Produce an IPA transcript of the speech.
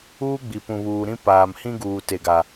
uː˦ ɡ͡b i˨ p ũ˨ β uː˨ ɾ ĩ˦ p aː˨ m h ĩ˦ ɡ uː˨ t e˨ ɡ a˨

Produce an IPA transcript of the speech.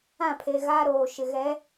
ã˦˨ pʰ e˨ ɣ aː˦ ɾ oː˨ ʃ ɪ˨ ɣ ɛ˨˦

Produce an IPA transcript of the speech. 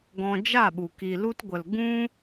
ɡ ɔ̃˧ d͡ʒ a˦˨ ɓ u˨ k i˨ l u˧ t ɡʷ ə˨ l ɡ ũ˦

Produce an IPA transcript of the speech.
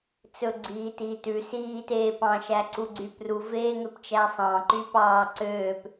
t͡s ɵ ɡ͡ǀ iː t iː t ʉ s iː t eː p ɑ̃ ʃ æ ǀ u ɡ͡ǀ y p r u v eː ŋ ø p t͡ʃ æ sˤ ɑ̃ ǃ y p ɑː ǀ øː p

